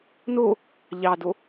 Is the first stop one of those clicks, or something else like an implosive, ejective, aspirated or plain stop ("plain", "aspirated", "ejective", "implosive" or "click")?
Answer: plain